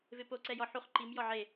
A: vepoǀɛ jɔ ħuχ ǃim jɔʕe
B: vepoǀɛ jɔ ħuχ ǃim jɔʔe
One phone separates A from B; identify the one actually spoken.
A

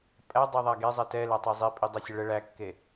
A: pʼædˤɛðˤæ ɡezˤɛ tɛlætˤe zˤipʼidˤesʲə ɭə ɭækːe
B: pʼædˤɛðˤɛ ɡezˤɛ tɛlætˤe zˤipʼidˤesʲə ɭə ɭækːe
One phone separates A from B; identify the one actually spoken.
A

